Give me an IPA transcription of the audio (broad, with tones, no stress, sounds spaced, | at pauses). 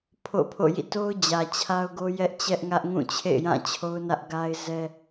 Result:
pʰ o̰˦˨ pʰ o̰˦˨ j ḭ˦˨ t o˦ ʊ̯ d͡ʑ ä˨ t͡ɕʰ a˦ ʊ̯ ɡ o˦ j ɛ˦ ʔ t͡ɕ ɛ˦ ʔ ŋ ä˦ ʔ ŋ ũ˦˨ t͡ɕʰ ḛ˦˨ ɪ̯ j ã˦˨ t͡ɕʰ o˦ ʊ̯ n ä˦ ʔ ɡ a˦ ɪ̯ z ɛ˦